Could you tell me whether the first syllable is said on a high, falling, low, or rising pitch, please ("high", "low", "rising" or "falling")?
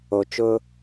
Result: low